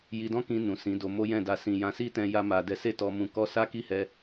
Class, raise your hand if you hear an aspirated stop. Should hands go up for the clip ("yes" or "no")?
no